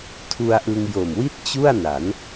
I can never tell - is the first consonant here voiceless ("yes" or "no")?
yes